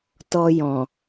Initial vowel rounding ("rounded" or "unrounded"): rounded